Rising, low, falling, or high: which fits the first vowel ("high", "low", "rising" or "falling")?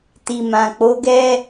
low